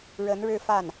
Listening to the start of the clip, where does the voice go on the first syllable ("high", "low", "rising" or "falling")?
rising